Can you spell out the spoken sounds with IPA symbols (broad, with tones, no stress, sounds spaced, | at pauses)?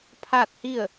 pʰ aː˥˨ t̚ h i˥˨ ə̯